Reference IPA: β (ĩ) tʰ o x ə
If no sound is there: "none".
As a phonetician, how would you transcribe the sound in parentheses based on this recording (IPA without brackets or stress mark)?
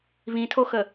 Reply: ĩ